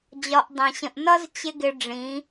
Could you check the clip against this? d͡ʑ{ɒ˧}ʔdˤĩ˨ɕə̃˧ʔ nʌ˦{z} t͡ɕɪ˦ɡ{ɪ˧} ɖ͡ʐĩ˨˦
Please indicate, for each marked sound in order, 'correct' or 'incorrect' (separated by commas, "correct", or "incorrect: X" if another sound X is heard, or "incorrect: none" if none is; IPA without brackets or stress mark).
correct, correct, correct